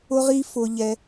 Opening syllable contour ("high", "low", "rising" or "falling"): high